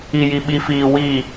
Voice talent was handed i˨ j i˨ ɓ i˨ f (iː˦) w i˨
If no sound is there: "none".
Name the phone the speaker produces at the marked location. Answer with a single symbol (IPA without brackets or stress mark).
iː˨